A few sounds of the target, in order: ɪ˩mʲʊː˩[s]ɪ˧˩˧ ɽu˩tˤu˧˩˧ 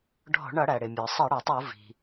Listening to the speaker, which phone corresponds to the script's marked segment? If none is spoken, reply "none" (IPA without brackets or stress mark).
sˤ